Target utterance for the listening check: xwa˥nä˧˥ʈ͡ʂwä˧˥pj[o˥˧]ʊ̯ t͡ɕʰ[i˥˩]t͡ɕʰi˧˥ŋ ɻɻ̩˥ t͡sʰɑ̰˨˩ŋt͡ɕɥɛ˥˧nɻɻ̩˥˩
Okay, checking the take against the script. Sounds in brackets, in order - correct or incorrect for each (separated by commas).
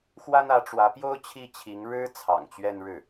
incorrect, correct